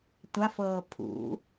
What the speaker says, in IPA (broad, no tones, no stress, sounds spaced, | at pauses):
tʷ a f ɤː pʰ ṵ